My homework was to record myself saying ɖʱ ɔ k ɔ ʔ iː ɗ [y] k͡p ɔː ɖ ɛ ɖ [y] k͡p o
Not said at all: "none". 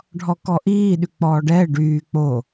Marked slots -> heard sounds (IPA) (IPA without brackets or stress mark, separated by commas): y, yː